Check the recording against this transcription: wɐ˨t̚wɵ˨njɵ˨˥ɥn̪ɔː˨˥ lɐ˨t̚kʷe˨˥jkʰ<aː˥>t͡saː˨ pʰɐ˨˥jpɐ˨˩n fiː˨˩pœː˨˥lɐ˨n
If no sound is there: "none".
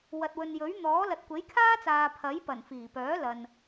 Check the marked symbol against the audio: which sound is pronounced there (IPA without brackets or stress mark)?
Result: aː˥